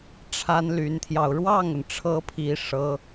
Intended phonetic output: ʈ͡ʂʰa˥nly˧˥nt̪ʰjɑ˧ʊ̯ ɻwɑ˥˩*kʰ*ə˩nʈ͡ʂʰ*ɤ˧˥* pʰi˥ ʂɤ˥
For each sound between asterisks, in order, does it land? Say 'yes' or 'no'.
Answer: no, yes

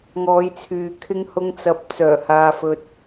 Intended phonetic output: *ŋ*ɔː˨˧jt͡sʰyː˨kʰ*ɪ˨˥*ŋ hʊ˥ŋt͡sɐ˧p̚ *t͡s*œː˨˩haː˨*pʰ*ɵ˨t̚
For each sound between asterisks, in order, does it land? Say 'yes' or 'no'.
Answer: yes, no, yes, no

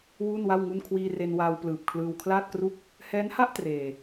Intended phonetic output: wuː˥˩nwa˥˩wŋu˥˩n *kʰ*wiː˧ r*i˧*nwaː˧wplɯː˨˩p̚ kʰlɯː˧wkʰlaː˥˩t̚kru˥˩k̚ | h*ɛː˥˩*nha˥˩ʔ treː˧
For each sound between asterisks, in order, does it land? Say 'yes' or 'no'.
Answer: yes, no, no

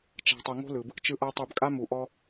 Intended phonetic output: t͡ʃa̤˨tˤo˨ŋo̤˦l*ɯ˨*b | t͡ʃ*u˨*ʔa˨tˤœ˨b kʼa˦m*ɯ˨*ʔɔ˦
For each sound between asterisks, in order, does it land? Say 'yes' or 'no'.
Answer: yes, no, no

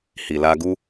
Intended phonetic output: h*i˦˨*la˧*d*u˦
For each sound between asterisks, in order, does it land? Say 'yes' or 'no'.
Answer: no, no

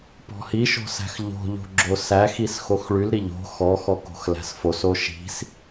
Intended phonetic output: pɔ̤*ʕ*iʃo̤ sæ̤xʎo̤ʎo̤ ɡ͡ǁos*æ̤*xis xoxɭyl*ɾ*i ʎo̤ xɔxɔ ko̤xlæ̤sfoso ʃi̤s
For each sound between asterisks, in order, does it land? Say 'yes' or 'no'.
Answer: no, no, yes

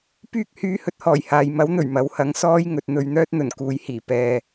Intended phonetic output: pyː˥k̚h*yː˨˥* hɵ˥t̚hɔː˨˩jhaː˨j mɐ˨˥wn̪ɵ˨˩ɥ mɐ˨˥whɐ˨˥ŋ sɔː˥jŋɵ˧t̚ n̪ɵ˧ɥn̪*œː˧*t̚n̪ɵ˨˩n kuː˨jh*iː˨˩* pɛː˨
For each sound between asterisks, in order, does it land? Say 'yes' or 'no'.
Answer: no, no, yes

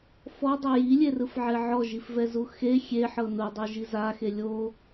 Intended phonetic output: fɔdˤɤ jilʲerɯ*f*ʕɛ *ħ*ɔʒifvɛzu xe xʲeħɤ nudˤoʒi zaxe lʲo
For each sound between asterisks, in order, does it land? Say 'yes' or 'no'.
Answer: yes, no

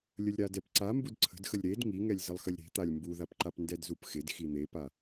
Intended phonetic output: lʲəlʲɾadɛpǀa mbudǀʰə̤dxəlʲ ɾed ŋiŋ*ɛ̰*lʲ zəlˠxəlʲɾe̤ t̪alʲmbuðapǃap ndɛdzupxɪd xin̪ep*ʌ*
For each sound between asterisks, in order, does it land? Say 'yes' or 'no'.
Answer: no, no

